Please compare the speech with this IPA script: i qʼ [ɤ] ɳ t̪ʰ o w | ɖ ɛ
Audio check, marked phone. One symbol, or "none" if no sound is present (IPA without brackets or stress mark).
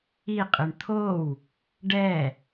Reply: ɯ